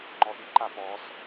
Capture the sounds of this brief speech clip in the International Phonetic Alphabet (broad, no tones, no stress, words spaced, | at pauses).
ŋ͡ǃɔɗiǃa pɔs